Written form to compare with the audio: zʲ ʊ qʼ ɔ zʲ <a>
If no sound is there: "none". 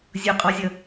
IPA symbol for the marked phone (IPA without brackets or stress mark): ʌ